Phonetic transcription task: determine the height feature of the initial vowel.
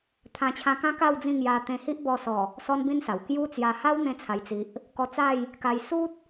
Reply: low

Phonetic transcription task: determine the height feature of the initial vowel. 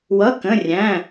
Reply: mid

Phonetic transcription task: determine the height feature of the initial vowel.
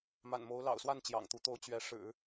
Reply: low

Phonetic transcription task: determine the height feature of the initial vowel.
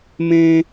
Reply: mid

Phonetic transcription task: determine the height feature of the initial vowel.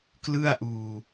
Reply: high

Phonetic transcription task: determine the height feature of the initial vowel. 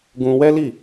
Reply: high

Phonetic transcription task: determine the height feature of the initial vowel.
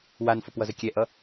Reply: low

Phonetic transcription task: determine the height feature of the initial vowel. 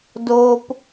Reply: mid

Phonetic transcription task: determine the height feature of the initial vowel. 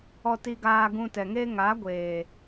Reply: mid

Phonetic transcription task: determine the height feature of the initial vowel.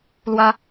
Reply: low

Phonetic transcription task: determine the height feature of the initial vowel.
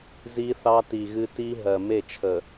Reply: high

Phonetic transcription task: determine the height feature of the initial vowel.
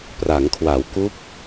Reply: low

